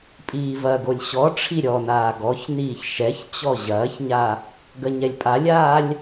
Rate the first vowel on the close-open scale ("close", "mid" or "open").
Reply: close